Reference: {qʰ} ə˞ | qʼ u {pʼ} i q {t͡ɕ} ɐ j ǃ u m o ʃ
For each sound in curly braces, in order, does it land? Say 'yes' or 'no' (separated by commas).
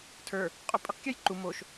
no, yes, no